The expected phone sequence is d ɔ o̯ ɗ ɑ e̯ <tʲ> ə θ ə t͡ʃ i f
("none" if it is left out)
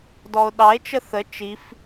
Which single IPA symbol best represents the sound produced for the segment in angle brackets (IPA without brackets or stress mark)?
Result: t͡ʃ